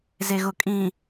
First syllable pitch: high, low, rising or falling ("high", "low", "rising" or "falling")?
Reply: low